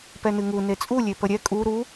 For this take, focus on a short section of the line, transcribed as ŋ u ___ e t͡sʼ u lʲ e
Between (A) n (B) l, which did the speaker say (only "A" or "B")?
A